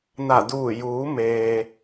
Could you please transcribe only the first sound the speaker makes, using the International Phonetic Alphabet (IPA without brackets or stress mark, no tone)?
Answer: n